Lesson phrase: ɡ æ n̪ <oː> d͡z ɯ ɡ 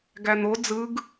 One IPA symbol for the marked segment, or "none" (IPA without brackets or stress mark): o